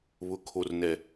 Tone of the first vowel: low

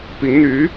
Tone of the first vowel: rising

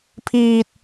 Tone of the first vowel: high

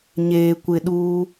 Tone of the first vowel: low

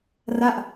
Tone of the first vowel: falling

